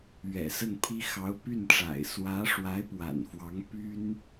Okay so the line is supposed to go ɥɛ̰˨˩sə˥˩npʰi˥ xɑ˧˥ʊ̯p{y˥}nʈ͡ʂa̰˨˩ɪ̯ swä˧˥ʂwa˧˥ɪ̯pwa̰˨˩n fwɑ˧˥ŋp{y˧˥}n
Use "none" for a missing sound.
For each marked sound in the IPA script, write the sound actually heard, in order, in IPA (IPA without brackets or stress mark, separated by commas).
y˥˩, y˥